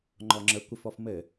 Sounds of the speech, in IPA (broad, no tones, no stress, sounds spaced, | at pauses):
ŋ͡ǃ ɔ ŋ͡ǁ ə kʷ ə f ɔ f m ɘ